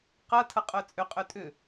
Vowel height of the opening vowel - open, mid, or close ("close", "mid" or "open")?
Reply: open